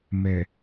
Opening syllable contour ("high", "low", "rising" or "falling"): low